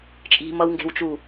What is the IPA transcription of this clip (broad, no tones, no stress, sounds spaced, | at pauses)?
t͡ʃʼ i̤ m ʌ w ŋ ɡ e̤ w t͡ʃ u